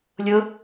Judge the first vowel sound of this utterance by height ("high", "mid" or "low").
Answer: high